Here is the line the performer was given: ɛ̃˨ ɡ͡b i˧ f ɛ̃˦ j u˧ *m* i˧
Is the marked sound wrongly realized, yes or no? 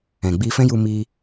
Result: no